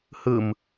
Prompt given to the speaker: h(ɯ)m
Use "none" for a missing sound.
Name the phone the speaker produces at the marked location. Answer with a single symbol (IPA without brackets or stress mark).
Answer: ɯ